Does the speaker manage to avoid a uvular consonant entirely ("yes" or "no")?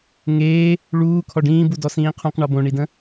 no